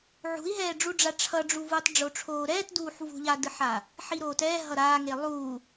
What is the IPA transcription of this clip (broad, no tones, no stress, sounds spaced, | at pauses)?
ʕ ṳ i̯ ɦ ɛː ɖ͡ʐ u ɖ͡ʐ a ʈ͡ʂʰ ʌ ɖ͡ʐ u v uː tˤ ɖ͡ʐ o ʈ͡ʂʰ oː ɾ ɛː t d uː ħ v ṳ ʎ a d ɯ ħ a | ħ i ɾ oː t ɛː ɦ ʌ ɾ aː ŋ e lˠ uː